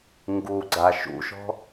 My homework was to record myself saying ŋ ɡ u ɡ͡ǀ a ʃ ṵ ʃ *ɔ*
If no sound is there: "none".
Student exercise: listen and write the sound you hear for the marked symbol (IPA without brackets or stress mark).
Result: ɔ̤